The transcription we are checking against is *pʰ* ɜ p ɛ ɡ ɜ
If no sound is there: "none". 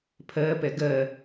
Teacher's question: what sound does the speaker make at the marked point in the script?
pʰ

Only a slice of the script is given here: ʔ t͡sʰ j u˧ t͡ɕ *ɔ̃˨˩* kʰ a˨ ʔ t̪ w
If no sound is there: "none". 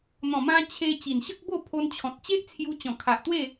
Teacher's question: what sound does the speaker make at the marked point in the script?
ɔ̃˨˩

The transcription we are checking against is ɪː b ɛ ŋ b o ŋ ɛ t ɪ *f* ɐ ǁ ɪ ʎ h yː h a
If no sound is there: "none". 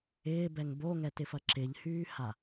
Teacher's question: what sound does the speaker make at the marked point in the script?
f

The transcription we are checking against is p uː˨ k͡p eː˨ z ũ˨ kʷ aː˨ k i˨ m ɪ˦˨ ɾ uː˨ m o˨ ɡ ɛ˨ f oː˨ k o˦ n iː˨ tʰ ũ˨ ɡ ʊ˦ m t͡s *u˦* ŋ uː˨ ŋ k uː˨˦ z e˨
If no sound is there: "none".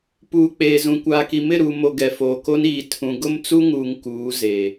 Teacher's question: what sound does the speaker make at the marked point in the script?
u˦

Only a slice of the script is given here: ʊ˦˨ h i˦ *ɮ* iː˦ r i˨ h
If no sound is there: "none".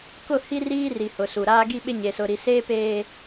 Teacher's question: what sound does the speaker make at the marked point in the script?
r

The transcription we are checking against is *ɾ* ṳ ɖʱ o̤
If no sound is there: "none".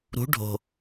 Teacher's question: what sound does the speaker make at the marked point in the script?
ɾ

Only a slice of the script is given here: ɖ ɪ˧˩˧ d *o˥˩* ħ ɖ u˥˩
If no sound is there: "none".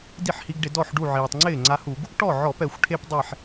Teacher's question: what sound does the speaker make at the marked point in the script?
ɔ˥˩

